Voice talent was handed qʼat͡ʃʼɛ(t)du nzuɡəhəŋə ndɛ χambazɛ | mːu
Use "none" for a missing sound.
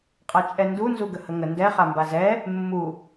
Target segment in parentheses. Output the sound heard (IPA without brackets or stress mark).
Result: n